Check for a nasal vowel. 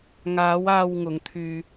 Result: absent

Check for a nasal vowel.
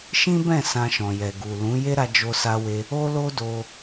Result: present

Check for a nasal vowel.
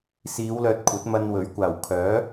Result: absent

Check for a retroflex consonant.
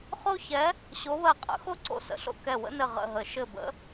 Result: absent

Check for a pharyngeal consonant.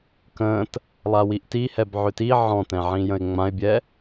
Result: present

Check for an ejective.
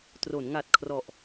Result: absent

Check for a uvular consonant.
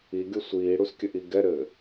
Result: absent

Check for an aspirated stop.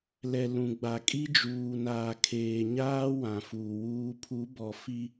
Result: present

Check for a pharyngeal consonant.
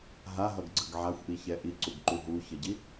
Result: present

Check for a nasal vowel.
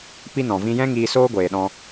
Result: present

